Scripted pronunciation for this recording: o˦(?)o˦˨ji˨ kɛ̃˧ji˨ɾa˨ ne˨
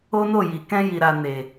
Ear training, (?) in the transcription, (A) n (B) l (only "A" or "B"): A